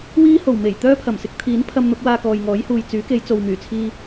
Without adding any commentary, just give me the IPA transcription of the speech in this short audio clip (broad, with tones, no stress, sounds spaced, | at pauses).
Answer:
w iː˥ h o˨˩ w m e˨˩ j t̪ œː˥ pʰ ɐ˨˩ m s ɪ˧ k̚ t̪ʰ iː˨˥ n pʰ ɐ˧ m n̪ ʊ˨˥ k̚ w aː˧ k ɔː˨ j ŋ ɔː˨˥ j h uː˨ j t͡s yː˨˥ k e˨˧ j t͡s o˨ w m yː˨˩ t͡sʰ iː˧